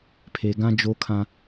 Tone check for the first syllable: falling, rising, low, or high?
low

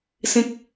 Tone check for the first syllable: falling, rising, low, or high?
high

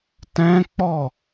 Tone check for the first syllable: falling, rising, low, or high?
high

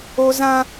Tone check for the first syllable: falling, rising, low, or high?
high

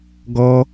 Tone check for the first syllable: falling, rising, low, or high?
high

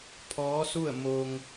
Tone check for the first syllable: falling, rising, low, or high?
rising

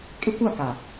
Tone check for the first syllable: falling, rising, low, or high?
high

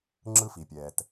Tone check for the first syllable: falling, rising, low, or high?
high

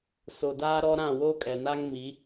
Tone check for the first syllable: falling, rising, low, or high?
low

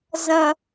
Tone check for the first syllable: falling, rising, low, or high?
low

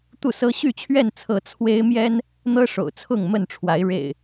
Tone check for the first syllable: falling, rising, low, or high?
falling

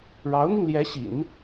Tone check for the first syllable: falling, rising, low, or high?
rising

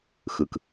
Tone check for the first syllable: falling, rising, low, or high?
low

